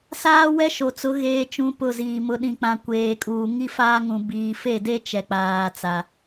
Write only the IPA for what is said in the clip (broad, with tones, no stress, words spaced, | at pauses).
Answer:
saː˦wɛ˦ʃo˨t͡sʊ˨˦ ɣeː˦t͡ʃũ˦pʊ˦˨ziː˨ mʊ˨ɗĩ˨k͡pã˨ kʷeː˨kʼuː˨ ŋi˦faː˦ŋũ˨ biː˨fe˦˨de˦ t͡ʃɛ˨k͡paː˨t͡sa˨